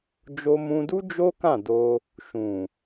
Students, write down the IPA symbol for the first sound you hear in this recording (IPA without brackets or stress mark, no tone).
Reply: d͡ʒ